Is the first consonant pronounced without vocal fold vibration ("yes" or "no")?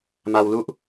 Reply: no